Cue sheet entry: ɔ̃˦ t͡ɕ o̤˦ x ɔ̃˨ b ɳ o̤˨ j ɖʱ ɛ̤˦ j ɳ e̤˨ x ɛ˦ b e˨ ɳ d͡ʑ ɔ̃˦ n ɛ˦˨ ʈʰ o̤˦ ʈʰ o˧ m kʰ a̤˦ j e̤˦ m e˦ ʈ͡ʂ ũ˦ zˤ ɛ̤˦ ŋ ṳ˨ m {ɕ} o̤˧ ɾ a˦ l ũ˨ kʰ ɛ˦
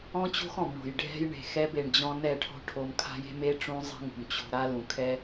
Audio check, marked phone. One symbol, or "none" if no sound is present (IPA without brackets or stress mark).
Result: t͡ɕ